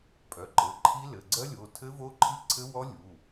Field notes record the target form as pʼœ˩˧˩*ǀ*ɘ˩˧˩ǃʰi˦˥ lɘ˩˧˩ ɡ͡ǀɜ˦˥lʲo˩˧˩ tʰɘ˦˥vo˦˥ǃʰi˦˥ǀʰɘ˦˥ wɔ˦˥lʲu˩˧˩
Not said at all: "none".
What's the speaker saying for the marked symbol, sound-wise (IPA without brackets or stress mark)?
ǃ